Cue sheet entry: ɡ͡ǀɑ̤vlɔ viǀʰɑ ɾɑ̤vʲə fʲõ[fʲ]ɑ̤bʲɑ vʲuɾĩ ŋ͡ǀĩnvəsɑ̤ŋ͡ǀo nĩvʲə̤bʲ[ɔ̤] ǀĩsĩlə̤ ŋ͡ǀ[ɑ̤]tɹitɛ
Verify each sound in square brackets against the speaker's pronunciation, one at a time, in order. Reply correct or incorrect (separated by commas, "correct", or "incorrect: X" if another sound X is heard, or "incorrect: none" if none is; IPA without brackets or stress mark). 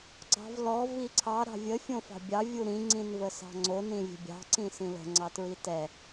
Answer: incorrect: f, incorrect: ɑ̤, incorrect: ɑ